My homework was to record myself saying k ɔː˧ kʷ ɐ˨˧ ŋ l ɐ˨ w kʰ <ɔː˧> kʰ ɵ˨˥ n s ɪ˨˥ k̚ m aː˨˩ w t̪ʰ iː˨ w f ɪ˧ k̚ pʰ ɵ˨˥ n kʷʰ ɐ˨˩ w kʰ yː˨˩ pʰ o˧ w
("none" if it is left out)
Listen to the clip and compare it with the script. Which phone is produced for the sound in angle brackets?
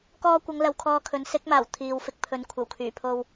ɔː˧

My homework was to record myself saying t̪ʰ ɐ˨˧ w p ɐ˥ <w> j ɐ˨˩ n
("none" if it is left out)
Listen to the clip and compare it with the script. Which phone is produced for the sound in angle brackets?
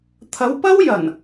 w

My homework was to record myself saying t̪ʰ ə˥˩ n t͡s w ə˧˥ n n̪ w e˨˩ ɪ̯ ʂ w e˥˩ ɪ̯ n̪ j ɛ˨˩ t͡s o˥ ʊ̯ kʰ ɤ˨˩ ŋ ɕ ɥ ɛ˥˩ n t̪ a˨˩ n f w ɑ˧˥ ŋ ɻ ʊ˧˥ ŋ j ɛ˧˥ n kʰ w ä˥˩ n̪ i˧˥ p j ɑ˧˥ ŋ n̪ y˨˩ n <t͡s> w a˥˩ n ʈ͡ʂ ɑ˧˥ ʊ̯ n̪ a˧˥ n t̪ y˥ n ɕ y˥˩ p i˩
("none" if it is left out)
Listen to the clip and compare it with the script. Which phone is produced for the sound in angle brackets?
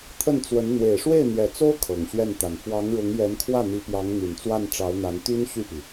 t͡s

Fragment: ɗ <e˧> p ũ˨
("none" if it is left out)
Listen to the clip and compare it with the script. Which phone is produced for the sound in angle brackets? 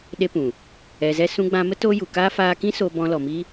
e˦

